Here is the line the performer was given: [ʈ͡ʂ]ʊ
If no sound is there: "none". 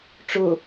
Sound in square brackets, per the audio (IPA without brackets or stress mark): ʈ͡ʂ